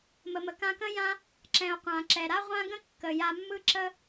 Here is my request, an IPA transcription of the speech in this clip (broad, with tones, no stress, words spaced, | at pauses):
mə˩mə˩ kã˧kə̃˥jã˥ | ǁɛ̃˩o̯ qʷã˩ǁɛ˩ɾa˥ʁʷã˥ ɡə̃˥ kːə˩ ja˧mːɯ˥ ǁə˥